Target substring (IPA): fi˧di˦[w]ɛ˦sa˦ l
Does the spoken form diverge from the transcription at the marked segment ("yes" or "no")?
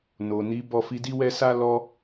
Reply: no